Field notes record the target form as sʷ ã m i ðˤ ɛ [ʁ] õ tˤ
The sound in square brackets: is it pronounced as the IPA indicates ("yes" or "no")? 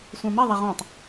yes